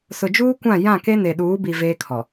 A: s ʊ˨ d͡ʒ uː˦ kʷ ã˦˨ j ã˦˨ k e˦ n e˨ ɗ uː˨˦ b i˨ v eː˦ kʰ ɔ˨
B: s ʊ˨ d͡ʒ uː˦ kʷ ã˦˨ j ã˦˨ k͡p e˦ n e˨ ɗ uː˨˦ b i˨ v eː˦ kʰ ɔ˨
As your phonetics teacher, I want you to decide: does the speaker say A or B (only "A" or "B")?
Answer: A